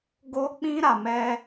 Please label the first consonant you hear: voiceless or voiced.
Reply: voiced